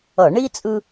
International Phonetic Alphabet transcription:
ʌ˧˩˧ ɳ i˥ t͡sʼ ɯ˥

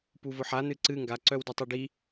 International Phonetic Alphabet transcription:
p u v ʊ ħ a n ɨ ǀ ɨ ŋ ɡ a ǀ œ w d œ tˤ i ɖ i

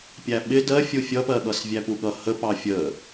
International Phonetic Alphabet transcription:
pʲ æ ɓ ɪ d ɜ fʲ u fʲ ʌ p ɜ ɠ ʌ s vʲ æ p u ɠ ʌ h ə p ɑ fʲ ə

